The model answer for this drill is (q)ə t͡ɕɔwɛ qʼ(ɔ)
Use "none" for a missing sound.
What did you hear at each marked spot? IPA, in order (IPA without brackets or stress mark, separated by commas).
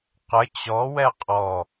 q, ɔ